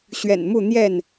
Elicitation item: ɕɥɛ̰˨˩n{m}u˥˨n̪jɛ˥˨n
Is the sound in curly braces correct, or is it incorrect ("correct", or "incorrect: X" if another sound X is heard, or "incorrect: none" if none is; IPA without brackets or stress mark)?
correct